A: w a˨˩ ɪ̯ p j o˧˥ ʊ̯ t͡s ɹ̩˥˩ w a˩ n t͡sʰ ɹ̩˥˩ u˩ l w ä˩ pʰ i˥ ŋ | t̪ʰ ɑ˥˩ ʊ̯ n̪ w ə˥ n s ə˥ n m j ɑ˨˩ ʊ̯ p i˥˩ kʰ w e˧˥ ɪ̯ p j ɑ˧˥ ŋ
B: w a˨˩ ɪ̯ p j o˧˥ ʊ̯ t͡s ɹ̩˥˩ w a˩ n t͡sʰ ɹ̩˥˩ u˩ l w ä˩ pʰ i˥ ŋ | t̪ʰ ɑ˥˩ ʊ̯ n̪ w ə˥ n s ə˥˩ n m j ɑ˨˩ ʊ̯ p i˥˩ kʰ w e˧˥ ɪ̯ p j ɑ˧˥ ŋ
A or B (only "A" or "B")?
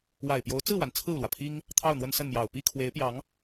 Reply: B